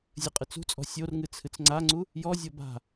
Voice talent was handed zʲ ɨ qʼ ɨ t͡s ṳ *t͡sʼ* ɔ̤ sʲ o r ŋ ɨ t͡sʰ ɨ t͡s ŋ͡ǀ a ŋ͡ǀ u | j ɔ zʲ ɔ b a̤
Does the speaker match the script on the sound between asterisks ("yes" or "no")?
yes